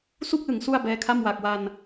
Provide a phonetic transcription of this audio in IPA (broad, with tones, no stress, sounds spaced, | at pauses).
s u˥˩ k̚ l ɯ˩˦ ŋ s u˥˩ a̯ b ɛː˦˥ kʰ a˥˩ m w a˨˩ k̚ w a˧ n